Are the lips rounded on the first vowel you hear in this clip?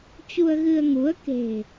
yes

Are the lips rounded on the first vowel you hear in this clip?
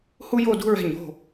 yes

